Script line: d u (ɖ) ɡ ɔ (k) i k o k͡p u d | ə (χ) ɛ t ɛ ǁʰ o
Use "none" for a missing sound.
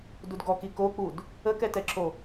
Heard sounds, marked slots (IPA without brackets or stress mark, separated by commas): d, k, k